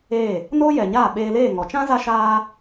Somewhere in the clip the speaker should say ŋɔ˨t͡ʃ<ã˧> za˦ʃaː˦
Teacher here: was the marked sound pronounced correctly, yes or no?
no